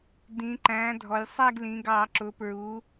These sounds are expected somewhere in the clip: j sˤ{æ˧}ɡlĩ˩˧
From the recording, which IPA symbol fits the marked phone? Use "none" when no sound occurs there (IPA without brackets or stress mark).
æ˥˧